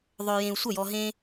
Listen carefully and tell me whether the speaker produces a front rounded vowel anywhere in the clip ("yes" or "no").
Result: yes